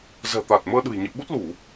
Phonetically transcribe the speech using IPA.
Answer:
z ɛ̤˨˩ t̪ a˨˩ t̚ m əː˧ ɗ ɨ̤˨˩ j ɲ ɨ̰˧˨ ɓ u˦˥ t̚ l u˧˩˨

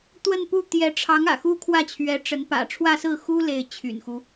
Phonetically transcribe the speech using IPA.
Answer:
t̪ w ə˥˧ n p u˥˩ t̪ j ɛ˧˥ ʈ͡ʂʰ ɑ˧˥ ŋ ä̰˨˩ x u˥ kʰ w ä˥˩ t͡ɕʰ ɥ ɛ˧˥ ʈ͡ʂ ə˧˥ n p ä̰˨˩ ʈ͡ʂʰ w ä˥˧ s ɹ̩˥˩ x u˥ l e˥˩ ɪ̯ t͡ɕʰ y̰˨˩ n x u˦

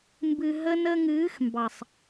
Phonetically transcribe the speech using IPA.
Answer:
m b ɨ˨ ɦ ə˧ n ə˧ ŋ ɨː˨˦ x m b ɑ˨ sˤ

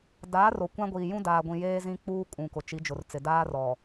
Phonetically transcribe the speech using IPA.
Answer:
d aː˨˦ r o˨ kʷ ã˦ ɡʷ iː˨ j ũ˦ d aː˨ ɡʷ ĩ˨ j eː˦ z ĩ˦ k͡p uː˦ kʼ ũ˨ k ʊ˨ t͡ʃ i˨˦ d͡ʒ ʊ˨ r t͡s ɪ˨ d aː˦ r ɔ˨

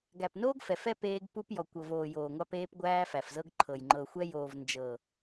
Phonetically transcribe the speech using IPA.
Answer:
ɡ æ˨ p n oː˦ ɡ f ɛ˨ f ɛ˦ p eː˦ ɡ p u˦ p j ɔ˨ kʷ ɤ˨ v oː˨ j oː˨ ŋʷ ɑ˦ p eː˦ p ɡʷ æː˦ f æ˨ f z ɤ˦ ɡ ǃʰ ɤ˨ j ŋ͡ǃ ɤ˨ xʷ ɛ˦ j oː˨ v n d͡ʒ ɤ˨

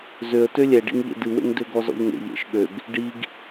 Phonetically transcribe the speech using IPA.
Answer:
z ø ə̯ t ø lʲ ɛ ɖ ḭ ŋ ʎ ḛ d ɨ w ḛ ŋ d ø ɡ ɔ z ɔ̰ ʎ ŋ ḛ ʎ ḛ ʃ ɠ ø ɡ | ɖ i ɡ

